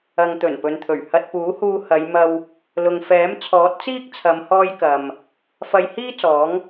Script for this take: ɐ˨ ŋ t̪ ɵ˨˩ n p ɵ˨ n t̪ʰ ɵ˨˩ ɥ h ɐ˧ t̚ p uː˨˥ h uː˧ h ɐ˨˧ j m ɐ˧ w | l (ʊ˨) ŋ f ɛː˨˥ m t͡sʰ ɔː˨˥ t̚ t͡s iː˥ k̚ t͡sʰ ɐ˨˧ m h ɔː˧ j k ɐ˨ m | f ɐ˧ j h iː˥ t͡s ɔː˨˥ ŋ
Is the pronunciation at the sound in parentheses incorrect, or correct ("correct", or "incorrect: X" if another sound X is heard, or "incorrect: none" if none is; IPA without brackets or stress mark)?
correct